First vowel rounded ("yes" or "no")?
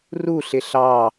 yes